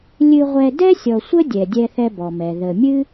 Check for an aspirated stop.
absent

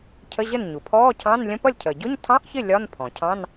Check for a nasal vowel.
present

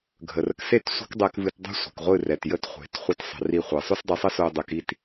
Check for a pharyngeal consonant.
absent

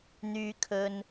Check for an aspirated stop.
present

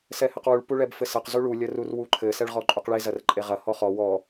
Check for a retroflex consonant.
present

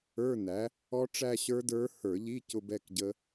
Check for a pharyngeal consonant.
absent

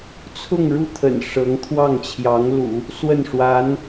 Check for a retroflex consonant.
present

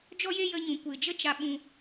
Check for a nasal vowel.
present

